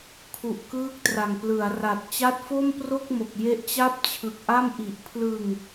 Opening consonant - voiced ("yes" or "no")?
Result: no